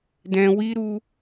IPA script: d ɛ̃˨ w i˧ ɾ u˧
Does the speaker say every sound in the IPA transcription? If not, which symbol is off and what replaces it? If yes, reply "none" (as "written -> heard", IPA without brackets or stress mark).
none